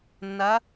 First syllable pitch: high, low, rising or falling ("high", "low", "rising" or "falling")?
rising